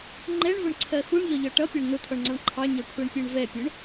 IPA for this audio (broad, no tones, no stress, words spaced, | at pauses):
ŋ͡ǃɛɳvʊɳǀʰɜ xuɳʎɒʎɒ ʈʌpʲɑɳ n̪ʊt̪ʰɔɳŋ͡ǀɑɳ ǃʰɑɲʌkʷʰɜɳpʲɜɳ vɛpʲʊɳ